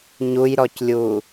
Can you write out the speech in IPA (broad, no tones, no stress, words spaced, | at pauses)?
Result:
ɲujɾɔclʲu